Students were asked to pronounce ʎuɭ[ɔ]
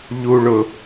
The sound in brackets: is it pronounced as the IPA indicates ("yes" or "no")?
no